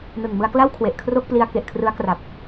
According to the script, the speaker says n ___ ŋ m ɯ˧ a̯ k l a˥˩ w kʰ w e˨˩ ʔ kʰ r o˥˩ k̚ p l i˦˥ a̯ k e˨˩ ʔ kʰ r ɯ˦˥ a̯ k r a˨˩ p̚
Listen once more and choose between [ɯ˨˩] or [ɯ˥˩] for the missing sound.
ɯ˨˩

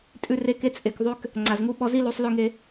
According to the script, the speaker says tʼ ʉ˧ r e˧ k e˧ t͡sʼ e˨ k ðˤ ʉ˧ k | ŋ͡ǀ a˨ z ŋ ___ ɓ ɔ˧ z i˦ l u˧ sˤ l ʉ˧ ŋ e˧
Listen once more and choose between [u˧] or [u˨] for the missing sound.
u˧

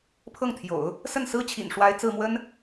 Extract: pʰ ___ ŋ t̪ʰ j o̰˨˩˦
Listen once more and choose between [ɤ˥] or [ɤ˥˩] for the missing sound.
ɤ˥˩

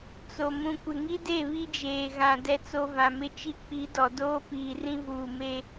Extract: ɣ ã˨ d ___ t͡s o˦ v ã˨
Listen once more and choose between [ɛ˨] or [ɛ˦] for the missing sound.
ɛ˦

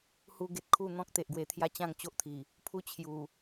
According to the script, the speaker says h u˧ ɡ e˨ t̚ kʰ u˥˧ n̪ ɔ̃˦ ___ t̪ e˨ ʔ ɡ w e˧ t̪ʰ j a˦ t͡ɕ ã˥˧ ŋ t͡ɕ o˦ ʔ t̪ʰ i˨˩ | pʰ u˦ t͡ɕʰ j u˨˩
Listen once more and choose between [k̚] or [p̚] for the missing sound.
k̚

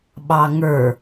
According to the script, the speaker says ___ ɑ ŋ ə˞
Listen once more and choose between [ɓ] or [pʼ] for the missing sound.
ɓ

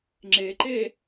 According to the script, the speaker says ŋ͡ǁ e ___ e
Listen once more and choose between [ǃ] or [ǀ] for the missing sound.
ǃ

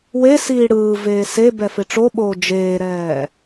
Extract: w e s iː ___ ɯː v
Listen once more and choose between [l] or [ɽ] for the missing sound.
ɽ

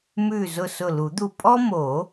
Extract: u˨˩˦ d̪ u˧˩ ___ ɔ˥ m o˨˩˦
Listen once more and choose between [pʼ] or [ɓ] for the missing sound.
pʼ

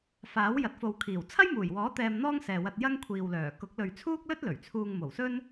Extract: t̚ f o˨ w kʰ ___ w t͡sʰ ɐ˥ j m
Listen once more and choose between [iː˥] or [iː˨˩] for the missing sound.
iː˨˩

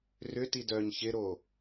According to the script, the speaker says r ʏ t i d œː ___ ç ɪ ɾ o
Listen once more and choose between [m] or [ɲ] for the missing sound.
ɲ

